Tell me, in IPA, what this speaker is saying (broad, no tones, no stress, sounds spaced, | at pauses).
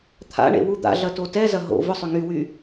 t̪ʰ a̰ ɳ ḛ w u d̪ a̰ ɮ ɐ t o t ɛ z ɐ ɦ o̰ v ʊ sˤ ʏ ŋ y w y